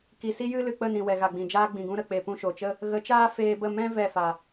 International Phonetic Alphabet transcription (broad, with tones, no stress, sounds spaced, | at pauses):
k i˨ s i˦ j ɨ˦ l ɨ˨ k͡p ə˦˨ n ĩ˨ w ɛ˨ ɣ a˨ ɡ͡b ĩ˨ d͡ʒ aː˦ ɡ͡b ĩ˨ ɡ ũ˧ ɾ ə˨ k͡p e˨ p ũ˧ ʃ o˨ t͡ʃ ə˦ | ɣ ə˨˦ t͡ʃ aː˦ f eː˧ b ə˦˨ m ɛ̃˦ v ɛ˦˨ f a˨